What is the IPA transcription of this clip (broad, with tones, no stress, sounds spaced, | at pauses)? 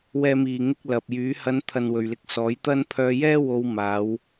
w ɛː˨ m iː˨˩ ŋ ɪ˧ k̚ l ɐ˨ p̚ j yː˨˥ h ɐ˨˧ n t̪ʰ ɐ˨ n w ɵ˨ ɥ l ɪ˧ k̚ s ɔː˨˥ j t̪ ɐ˥ n pʰ œː˧ j ɛː˥ w o˧ w m aː˨˧ w